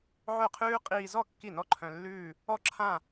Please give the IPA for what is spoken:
ʕœ˥˩qʰʉː˥ qʼiː˧zɔ˥˩ kːi˥˩nɔ˥ǃʰœ̃˧ lːʉː˥˧ | ɔ˥˧ǁʰã˥˧

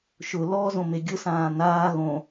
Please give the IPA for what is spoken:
ʃʊ lɔ zõmeɡʲʊ sãːnaː ɣõ

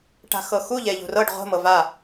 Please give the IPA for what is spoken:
ʈa̤xɤxu ʎɛʎṳrɤɖ ʁʷə̤ mɤva

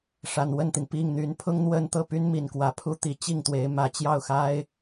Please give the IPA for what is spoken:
ʂa˨˩nwə˥˩nt̪i˩n pi˥˩ŋn̪y˧˥n pʰʊ˥ŋn̪wə˥nt̪ɤ˥˩py˥n mi˨˩nkwä˧˥pʰu˥t̪i˧˥ t͡ɕi˥˩ŋt̪we˧˥ɪ̯ mä˨˩t͡ɕjɑ˥˩ʊ̯xa˥ɪ̯

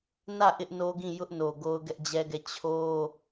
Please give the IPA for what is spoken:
nä˦˨ ʔɪ˦ʔno˦ɡĩ˦˨ jʊ˦ʔno˨ ɡo˦ʊ̯ɡɛ˦ʔd͡ʑɛ˦ɡɛ˦˨ t͡ɕʰo˦

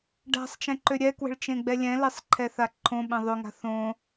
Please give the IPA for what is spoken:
ɖa̤sˤt͡ʃɛ̃ǃø ɾʲɛkwə̤ɭ t͡ʃẽɡ͡bɛlʲɛ̃ lesˤǃʰɛθaǃʰõ ɓɛ̃ðˤøŋa̤ θõ

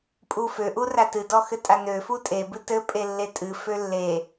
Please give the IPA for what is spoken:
pʼufø ʔuratɨ dɔxɘtʼanø futʼe bɨtɘ pʼelːetʼɨ følːe

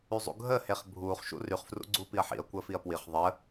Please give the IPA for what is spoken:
yzˤṵɡʱəː heχbʱuːχ ʃṵryχ frṵɡ͡ǀuːpiɐ̯ħḭɐ̯ kʷəːfiɐ̯pwiχ ðˤə

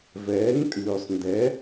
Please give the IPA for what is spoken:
vɛː˨˥ŋtʼʉː˨sˤndɛ˨˥

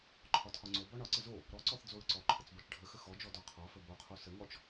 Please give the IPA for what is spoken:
ǃʰɒtʰɒŋ͡ǀobɒ ɳɒǀə zo | ɾɔǀɔθ d͡zoɹǀɔǃʰət͡s bɔt͡ʃɖʱəxə xɔd͡ʒɔ dɔqʰɒfə boqʰo səŋɔt͡ʃ

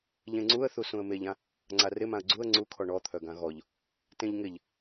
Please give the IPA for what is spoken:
ʎẽŋ͡ǀuə̯ θusũə̯meʎã | ŋ͡ǀarɪmãə̯ ɡ͡ǀuə̯ ŋ͡ǀukʰɔ ɳɔt̪ʰœɡã ɣɔʎ | tẽʎŋɪʎ

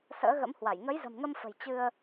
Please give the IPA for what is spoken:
sə̰ː˧˥ɣə̰˧˥mhwa˧˩j ŋə˨˦jzə̤˨˩mŋə˧mfə̤˨˩j t͡ɕɨ˧ə̯

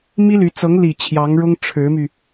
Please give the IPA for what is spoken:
mi˥ly˧˥ t͡sɤ˧˥ŋli˨˩ t͡ɕʰjɑ˧˥ŋɻʊ˥ŋ ʈ͡ʂʰɻ̩˧˥my˧

